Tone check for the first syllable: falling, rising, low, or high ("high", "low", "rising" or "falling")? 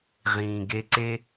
low